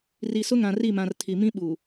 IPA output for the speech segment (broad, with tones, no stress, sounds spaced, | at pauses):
r i˨ s ʊ˦ ŋ ã˨ r i˦˨ m ã˨ r tʰ i˨ m ĩ˦ ɓ u˨